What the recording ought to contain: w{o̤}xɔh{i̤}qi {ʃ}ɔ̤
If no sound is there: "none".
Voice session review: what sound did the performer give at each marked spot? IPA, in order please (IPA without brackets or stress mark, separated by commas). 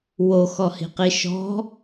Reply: o, i̤, ʃ